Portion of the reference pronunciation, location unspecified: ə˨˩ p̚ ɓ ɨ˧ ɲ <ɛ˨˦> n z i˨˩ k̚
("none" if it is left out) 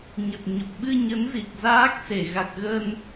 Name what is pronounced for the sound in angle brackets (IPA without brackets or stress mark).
ə˨˦